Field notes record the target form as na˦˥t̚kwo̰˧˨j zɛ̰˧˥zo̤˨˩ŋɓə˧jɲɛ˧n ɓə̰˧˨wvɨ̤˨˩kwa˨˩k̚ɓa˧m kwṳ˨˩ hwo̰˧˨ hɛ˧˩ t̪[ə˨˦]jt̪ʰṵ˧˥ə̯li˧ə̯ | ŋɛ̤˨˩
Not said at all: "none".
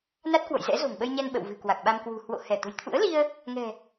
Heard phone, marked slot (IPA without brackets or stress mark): ə̤˨˩